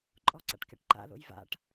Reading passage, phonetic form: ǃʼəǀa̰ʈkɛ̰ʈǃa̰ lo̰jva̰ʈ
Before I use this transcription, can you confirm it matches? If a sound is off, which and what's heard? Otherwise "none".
ə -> ɔ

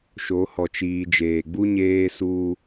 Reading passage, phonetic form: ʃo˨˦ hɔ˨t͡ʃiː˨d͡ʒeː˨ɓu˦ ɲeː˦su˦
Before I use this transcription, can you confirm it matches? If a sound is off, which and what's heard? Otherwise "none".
ɓ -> ɡ͡b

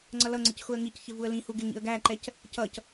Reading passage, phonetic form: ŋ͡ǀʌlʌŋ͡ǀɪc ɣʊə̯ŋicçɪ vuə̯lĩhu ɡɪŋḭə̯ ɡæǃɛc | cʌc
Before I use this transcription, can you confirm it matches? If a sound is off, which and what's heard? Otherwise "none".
ɣ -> x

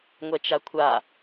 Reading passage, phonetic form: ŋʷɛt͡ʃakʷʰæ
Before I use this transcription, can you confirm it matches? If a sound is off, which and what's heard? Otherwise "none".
æ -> a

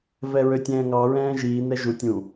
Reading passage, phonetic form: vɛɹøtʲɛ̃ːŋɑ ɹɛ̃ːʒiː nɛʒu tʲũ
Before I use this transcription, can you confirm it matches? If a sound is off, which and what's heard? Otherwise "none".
none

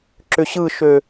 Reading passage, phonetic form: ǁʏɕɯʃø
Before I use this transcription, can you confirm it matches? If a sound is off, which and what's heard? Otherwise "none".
none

